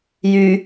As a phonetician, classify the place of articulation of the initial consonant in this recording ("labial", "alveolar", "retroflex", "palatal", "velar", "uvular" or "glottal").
palatal